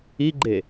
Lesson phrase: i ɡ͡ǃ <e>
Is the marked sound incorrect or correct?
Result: correct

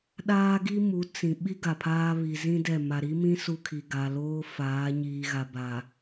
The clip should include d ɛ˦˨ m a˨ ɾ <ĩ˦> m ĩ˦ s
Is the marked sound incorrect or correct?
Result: incorrect: i˦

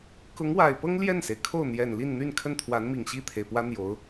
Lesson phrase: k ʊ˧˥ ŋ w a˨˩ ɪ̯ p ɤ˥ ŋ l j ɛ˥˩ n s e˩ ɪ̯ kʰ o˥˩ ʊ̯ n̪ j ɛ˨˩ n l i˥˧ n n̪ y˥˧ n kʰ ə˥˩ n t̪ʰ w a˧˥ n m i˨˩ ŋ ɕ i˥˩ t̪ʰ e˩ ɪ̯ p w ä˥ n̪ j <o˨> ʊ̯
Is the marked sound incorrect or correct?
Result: incorrect: o˧˥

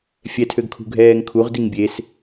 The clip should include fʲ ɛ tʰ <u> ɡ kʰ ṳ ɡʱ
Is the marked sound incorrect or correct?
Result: incorrect: ø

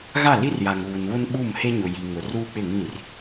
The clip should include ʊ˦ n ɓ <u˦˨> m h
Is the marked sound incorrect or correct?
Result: correct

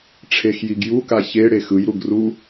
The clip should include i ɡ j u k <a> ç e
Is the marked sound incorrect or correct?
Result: correct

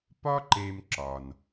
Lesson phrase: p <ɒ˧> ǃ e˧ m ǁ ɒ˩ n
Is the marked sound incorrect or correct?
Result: incorrect: ɒ˥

